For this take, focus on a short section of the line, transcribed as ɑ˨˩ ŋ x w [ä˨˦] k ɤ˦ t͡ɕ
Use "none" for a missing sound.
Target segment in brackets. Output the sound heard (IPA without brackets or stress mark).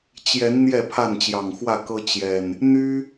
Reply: ä˥˨